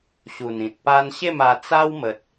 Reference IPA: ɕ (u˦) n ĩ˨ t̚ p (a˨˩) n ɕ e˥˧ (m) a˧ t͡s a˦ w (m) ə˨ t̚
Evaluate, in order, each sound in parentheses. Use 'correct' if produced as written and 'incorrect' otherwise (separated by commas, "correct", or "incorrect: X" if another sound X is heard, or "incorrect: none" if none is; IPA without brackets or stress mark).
incorrect: u˨˩, incorrect: a˦, correct, correct